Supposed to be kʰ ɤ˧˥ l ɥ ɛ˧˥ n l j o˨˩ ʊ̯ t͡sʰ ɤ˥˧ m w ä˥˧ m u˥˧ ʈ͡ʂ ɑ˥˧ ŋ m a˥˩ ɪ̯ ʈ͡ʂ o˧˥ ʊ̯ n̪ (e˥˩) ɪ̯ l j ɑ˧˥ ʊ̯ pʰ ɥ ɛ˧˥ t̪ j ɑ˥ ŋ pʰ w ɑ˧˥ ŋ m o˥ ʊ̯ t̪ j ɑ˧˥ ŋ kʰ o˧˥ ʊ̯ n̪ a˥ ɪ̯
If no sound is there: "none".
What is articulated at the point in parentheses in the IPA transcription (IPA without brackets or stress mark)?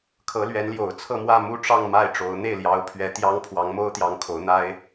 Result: e˥˩